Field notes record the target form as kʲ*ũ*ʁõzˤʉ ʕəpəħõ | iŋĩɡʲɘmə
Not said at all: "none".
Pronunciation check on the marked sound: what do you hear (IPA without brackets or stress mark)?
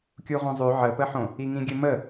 u